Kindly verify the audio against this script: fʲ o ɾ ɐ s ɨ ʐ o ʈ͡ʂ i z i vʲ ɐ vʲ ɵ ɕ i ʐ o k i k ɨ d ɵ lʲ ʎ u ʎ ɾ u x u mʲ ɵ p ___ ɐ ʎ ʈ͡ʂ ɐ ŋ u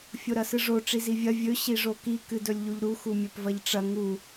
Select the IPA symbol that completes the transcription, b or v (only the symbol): v